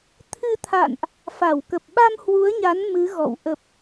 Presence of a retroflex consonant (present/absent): absent